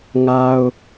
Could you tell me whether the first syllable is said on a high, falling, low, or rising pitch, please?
high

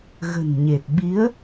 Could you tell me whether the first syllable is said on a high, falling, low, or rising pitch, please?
low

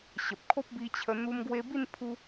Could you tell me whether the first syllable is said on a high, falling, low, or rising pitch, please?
low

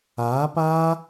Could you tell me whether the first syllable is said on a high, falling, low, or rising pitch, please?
rising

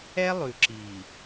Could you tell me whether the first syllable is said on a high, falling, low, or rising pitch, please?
high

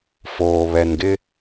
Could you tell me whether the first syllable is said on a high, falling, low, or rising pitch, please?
low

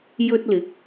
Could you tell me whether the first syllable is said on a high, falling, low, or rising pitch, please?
high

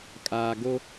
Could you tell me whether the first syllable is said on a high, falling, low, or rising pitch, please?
low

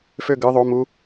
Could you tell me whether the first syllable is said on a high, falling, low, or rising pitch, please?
falling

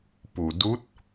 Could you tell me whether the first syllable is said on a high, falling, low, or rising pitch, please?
low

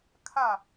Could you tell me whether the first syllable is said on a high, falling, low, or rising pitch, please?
falling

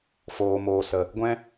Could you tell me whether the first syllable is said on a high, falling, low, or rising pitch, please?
low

